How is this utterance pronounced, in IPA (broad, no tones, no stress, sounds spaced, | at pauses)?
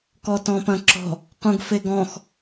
k ɔ t ɔ̃ p ɐ̃ ǁ ɔ̤ | q ũ ɡ f e ɡ ɔ̃ x